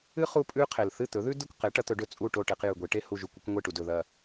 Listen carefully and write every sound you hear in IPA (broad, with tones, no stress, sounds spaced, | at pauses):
ɨ˥ χ u˥ pʼ ʉ˥ qʰ e˩ l θ ɨ˥˩ t̪ ɵ˩˥ ð ʉ˥ d ɨ˥˩ kʷ q e˩˥ ʈ ɐ˩˥ t̪ ɵ˩˥ ɖ ɵ˧ t͡sʼ u˥˩ ʈ o˥˩ ʈ e˧ q j ʉ˩ ɡʷ e˩˥ ʈ e˥ h u˥˩ ʒ u˥˩ kʷ ɨ˥ kʷ ŋʷ e˥˩ ʈ u˩ d ɵ˩ ð ɐ˥˩